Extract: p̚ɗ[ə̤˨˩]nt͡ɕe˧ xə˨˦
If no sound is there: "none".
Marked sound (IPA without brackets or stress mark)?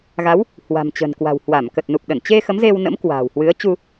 ə˧˩